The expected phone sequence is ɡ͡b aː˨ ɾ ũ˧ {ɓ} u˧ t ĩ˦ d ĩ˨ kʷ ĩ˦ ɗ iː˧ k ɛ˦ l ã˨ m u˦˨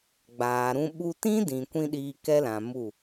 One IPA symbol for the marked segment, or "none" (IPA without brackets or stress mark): ɓ